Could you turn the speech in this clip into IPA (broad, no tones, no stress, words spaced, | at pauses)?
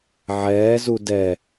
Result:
ʕɛːzu dɛ